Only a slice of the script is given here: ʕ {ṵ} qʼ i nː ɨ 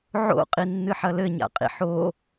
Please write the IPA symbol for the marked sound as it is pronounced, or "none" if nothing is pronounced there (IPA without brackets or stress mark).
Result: o̰